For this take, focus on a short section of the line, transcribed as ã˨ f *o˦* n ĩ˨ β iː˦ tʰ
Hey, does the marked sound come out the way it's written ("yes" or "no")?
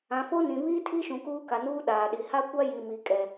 yes